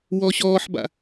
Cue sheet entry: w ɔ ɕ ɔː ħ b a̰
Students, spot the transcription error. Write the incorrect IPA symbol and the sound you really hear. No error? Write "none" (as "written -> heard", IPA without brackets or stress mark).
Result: none